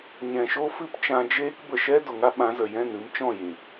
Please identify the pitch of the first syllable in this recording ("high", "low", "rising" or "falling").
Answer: low